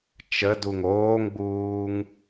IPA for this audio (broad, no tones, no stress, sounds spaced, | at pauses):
t͡ʃ ə d u ŋ oː ŋ ɡ͡b uː ŋ